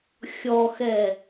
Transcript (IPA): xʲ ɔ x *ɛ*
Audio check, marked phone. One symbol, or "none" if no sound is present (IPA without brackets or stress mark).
ɛ